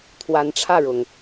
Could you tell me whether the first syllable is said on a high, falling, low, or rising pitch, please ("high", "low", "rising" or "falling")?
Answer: rising